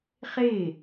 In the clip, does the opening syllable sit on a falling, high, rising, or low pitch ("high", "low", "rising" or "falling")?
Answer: falling